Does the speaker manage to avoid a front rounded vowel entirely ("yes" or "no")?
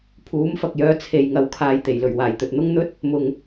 no